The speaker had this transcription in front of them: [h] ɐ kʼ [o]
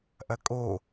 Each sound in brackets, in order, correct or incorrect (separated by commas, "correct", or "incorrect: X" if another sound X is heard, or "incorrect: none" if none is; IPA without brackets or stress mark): incorrect: ʔ, correct